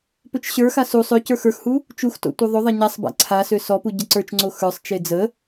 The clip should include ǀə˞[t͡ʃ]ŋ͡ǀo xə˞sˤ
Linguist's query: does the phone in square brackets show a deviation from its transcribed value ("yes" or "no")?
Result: no